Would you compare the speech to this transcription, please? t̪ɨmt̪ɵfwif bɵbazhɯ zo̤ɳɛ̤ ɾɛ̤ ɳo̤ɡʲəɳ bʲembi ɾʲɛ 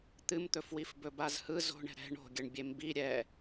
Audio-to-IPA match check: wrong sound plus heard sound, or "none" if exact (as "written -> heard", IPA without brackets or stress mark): none